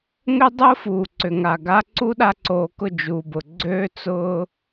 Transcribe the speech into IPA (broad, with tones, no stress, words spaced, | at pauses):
ŋʏ˦dˤʊː˦fuː˨ ǀʏ˨ŋa˨ɡa˧ ǀu˦ɗa˧ǀoː˨kʊ˦˨ d͡ʒuː˨bʊ˨ ɡ͡ǀøː˧ t͡sʊː˧